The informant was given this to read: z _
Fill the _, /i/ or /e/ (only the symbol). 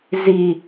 i